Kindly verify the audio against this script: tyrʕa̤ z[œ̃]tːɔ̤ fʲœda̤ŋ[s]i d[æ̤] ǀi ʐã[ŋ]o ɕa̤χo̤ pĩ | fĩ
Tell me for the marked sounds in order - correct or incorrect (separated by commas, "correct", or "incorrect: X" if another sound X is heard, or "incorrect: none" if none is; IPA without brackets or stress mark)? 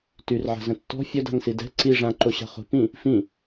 incorrect: ə̃, correct, incorrect: ɛ̤, incorrect: ǃ